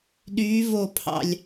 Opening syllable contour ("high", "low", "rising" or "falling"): rising